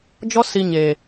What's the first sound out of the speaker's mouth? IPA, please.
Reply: d͡ʒ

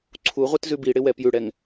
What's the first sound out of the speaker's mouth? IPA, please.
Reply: ǀʰ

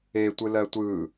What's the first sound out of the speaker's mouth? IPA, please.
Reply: e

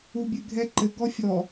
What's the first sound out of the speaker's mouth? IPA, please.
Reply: u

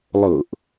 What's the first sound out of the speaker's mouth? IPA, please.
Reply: lˠ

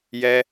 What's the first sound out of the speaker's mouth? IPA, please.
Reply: j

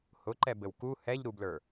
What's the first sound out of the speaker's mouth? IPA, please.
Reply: h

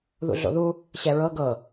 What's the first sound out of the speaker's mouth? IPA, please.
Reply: ð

